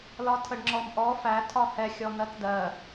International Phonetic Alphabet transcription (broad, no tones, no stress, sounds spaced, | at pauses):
l ɒ tʰ ə ɖ ŋ͡ǁ ɔ m ʔ ɔ f æ tʰ ɒ h ɛ xʲ ɔ n̪ ɜ t d ɜ